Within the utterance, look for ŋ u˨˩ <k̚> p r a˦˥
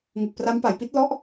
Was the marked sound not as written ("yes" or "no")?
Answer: no